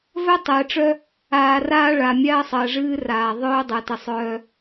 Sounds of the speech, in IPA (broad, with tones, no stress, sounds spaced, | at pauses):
v œ˦ tˤ ɛː˨ ʈ͡ʂ œ˦ | aː˨ r aː˦ ɭ a˨ mʲ a˦ ɐ̯ sˤ ɜ˨ ʐ ɨː˦ r aː˨ ðˤ œː˦ dˤ ɜ˨ t ə˨ sˤ œː˦